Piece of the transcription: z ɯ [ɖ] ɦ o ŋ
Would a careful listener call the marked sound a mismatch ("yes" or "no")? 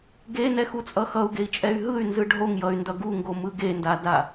no